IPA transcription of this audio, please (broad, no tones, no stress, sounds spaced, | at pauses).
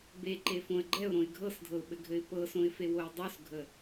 b e ǃ e f õ ə̯ ɡ͡ǃ ɛ ʊ̯ ɾ õ ɪ̯ ɡʱ ɤ s dʱ ɤ ʊ̯ ɓ ɘ ɡʱ ɘ ɪ̯ p ɤ s õ ɪ̯ f e w o ɪ̯ dˤ o s ɡʱ ə